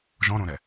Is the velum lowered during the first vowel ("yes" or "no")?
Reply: yes